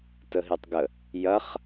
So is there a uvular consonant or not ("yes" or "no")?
yes